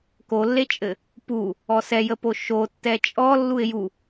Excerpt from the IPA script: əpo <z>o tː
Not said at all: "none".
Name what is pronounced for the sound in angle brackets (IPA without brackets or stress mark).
ʃ